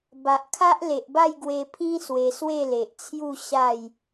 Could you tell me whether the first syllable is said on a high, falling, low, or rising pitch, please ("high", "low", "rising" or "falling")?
low